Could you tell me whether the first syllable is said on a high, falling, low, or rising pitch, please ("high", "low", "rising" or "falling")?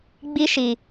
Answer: high